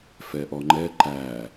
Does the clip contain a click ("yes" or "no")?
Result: yes